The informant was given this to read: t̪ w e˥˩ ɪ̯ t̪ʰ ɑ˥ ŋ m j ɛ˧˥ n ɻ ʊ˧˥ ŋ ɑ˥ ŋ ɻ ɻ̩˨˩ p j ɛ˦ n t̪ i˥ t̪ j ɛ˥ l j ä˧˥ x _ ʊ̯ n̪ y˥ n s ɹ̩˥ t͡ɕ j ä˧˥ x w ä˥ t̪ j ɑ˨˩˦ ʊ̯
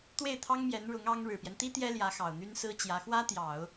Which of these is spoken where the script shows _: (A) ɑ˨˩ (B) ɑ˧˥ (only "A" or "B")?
A